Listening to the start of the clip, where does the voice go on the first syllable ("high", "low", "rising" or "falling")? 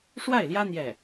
falling